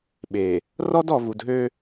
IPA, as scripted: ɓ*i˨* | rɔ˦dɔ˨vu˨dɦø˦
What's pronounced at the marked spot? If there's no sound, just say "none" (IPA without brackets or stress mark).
e˨